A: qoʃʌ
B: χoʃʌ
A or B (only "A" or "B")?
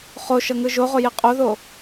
B